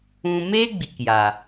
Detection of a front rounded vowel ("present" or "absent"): absent